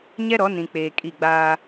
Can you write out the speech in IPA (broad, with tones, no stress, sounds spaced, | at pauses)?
ɲ ɛ˦ ɾ ɔ˨˦ n ĩ˨ k͡p eː˨ kʼ i˦˨ ɡ͡b aː˦